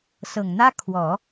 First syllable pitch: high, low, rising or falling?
low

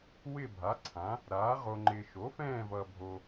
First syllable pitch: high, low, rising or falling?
falling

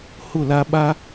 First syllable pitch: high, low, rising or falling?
falling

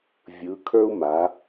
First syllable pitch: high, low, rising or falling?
rising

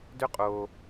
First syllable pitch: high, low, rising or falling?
high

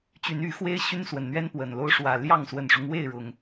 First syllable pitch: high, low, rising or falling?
rising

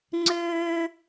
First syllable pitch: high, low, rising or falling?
high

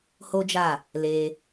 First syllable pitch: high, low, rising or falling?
high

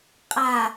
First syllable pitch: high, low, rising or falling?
low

